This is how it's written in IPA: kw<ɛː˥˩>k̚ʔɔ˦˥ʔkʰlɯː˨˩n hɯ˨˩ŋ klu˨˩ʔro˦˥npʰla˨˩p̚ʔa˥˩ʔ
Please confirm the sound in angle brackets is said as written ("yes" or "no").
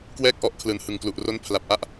yes